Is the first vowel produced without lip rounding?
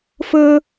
yes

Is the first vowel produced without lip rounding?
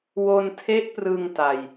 no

